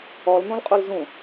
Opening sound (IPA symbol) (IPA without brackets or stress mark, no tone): ɔ